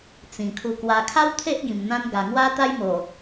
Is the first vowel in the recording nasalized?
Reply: yes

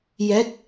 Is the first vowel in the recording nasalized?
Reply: no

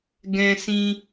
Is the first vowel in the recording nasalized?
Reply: yes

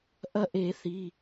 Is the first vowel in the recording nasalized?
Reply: no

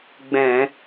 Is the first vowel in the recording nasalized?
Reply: yes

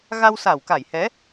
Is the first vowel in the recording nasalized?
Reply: no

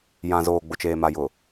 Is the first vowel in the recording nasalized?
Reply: yes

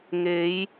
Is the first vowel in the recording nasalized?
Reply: no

